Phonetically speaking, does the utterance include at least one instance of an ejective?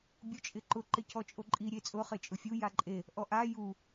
yes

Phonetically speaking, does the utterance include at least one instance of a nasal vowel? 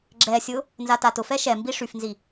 no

